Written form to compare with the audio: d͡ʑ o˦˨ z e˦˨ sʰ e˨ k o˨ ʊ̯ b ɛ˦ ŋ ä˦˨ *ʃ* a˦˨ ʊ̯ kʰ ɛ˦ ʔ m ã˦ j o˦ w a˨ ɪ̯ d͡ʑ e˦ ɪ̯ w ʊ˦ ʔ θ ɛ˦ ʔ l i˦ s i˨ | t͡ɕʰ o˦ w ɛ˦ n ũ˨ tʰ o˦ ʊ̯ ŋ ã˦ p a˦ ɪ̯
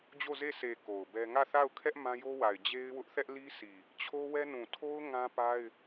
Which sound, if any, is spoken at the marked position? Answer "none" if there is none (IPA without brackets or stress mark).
θ